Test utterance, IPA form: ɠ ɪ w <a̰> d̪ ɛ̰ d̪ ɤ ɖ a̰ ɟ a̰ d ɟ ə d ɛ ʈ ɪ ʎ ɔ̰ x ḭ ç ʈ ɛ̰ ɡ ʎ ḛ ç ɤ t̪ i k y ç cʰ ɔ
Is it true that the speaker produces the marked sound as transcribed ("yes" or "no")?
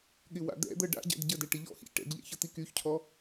yes